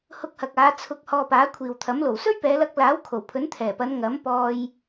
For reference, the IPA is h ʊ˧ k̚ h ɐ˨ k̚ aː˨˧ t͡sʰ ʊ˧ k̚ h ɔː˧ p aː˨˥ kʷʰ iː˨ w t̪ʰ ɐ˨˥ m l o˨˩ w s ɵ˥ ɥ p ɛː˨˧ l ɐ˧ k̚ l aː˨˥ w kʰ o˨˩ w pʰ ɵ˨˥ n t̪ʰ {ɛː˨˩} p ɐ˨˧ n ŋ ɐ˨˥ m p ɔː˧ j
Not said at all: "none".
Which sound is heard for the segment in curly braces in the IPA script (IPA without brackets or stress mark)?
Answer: ɛː˨˩